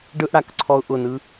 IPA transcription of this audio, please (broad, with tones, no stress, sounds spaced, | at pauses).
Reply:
ɖ ɯ˥ ʔ ɽ a˩˧ k ǀʰ ɔ˥ ʊ̯ ʔ ʊ˥˧ n ɯ˥